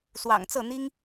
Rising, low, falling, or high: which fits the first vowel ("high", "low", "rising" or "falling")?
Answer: low